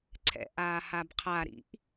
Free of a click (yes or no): no